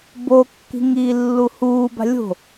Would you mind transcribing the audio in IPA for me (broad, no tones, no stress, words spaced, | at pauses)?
bokːi̤ŋ iːlːuhuːba̤ lʲo̤